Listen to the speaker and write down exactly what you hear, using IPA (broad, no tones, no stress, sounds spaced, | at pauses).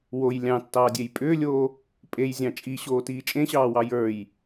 w o j lʲ ɑ̃ tː ɑː dʲ e j pʼ ʏː lʲ oː | pʼ e j zʲ ɑ̃ t͡ʃʼ i ɕ oː t iː t͡ʃʼ ẽ ɕ ɑː w ɑ j ə˞ j